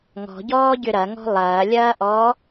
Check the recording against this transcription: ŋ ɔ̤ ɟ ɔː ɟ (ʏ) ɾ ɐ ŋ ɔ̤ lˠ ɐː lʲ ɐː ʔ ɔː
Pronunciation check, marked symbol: correct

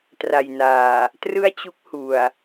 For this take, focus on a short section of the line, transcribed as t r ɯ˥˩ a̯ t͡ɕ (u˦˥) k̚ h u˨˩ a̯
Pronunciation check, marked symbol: correct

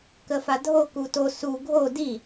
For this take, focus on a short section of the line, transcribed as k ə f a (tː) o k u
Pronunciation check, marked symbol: incorrect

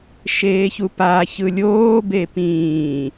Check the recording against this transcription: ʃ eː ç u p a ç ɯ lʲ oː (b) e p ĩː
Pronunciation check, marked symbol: correct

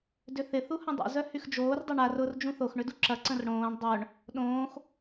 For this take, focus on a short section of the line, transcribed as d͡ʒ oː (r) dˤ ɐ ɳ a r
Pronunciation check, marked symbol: correct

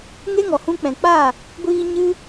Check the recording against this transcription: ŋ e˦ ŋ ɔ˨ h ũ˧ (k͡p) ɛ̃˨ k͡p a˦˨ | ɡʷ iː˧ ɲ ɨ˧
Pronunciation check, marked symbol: correct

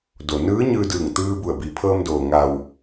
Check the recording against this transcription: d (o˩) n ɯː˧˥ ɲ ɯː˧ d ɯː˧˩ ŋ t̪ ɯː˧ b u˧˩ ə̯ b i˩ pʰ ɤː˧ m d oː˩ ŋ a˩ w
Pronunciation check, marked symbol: correct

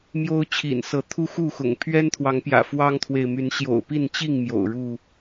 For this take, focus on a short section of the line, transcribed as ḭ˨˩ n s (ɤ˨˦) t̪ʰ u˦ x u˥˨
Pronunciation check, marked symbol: correct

